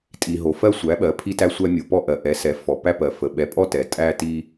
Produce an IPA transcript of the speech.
tʼi˩ ɦo˩fɜ˧sʷæ˩˧ ɓɜ˩˧pʰi˧tæ˧sʷæ˧ mʲo˩pɔ˧ ʔɜ˩ʔɛ˩˧sɛ˩˧ fɔ˩ pæ˧pɜ˩ fə˩ ɓɛ˩˧pʼɔ˧ tɛ˩tʼæ˧ ti˧

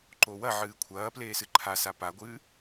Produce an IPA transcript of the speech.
ǃowɐʕɨː kʷʰɐːpleːs ɨǃʰasa paɡʷɨː

